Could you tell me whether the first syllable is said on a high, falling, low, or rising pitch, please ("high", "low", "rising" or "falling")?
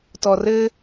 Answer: low